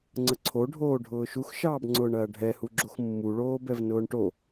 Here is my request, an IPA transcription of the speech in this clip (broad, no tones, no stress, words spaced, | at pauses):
ŋ͡ǀəǀʰoɖʱoː ɖʱʊːʃuxʃɑːbŋ͡ǀʊːɳ ɐːɖʱɛhu ɡ͡ǁoxmːuɭoːbɛv nʊːɳʈo